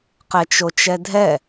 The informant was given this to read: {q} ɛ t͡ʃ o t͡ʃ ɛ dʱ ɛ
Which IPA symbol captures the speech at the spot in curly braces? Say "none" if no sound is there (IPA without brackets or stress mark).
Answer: q